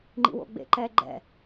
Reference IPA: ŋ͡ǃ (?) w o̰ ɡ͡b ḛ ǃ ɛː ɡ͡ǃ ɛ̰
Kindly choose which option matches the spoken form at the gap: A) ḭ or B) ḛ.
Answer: A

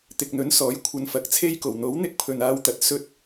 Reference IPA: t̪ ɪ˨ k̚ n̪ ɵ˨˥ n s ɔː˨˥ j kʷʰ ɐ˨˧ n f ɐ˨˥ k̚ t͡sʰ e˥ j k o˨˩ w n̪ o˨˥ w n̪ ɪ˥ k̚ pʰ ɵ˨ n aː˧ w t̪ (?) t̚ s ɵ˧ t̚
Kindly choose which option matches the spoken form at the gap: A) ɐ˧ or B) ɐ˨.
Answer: B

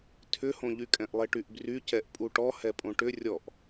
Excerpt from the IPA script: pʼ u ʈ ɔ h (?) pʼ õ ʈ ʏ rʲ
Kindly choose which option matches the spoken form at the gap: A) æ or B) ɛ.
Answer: B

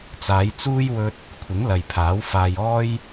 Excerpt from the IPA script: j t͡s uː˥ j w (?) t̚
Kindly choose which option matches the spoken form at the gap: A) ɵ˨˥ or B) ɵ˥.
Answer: B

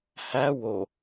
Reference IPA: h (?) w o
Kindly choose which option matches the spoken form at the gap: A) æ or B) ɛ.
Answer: A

